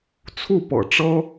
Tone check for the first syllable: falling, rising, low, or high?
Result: falling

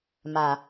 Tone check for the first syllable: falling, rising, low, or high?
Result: low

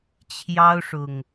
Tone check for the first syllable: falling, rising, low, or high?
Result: high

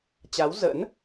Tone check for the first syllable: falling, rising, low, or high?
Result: rising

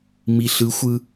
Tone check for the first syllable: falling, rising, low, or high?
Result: low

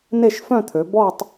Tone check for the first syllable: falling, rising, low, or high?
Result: falling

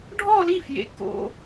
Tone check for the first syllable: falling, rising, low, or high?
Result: falling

